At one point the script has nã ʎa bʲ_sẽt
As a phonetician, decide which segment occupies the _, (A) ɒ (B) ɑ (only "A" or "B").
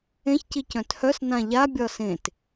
A